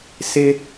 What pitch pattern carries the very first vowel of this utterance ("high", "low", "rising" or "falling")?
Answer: high